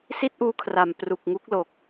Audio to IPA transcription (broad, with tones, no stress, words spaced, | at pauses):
si˥˩t̚ʔuː˧kʰra˨˩m pru˨˩k̚ŋu˦˥k̚ lo˨˩k̚